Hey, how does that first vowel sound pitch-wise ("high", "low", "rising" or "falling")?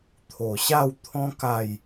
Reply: low